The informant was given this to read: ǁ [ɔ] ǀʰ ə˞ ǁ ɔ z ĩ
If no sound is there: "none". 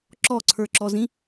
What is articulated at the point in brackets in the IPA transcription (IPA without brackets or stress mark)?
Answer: ɔ